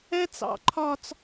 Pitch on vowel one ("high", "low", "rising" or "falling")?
high